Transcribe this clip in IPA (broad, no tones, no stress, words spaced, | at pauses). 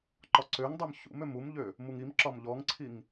ǃɒǀøŋdˤøm çṵmøm umʎø | muŋimǁɒm ʎɔŋǀʰiŋ